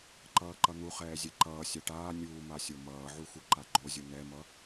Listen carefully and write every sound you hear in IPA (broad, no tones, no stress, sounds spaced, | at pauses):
ǃ ʌː ǃ ʌ n̪ u χ ɛː zʲ ɛ ǃ ʌː sʲ a ʈ aː nʲ uː m a sʲ o m ʌː ʕ u x u ǃ a ɡ͡ǃ o zʲ u n̪ ɛ m ʌ